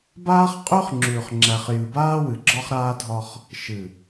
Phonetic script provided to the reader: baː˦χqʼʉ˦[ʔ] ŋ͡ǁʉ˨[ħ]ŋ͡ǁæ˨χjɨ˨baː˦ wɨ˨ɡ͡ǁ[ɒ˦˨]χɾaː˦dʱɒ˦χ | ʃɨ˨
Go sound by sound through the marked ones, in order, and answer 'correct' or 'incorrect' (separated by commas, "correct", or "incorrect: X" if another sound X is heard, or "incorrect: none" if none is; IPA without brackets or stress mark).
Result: incorrect: χ, incorrect: χ, incorrect: ɒ˦